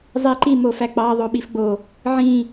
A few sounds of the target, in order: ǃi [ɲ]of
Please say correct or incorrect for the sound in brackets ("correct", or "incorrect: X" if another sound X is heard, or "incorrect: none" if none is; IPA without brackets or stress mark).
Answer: incorrect: m